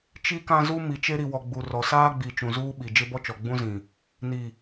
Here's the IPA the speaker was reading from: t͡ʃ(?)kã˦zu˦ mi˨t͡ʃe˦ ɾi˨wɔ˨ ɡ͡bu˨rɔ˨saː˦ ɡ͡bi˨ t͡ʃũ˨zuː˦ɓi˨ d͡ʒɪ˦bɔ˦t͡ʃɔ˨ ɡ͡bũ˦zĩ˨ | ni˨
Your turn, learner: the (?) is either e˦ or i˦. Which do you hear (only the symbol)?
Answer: i˦